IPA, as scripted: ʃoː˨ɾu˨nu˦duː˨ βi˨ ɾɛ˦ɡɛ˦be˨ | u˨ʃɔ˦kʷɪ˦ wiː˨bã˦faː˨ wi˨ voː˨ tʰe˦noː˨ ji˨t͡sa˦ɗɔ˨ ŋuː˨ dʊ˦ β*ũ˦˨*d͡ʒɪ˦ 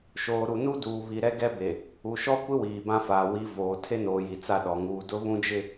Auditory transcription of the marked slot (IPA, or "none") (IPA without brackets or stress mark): ũ˦